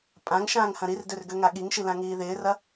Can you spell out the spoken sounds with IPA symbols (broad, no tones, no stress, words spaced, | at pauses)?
pʼãŋ ʃãːŋhɐ̃ɾirdør ɡøŋaɠiŋʃi lãŋiːðɪːrɐ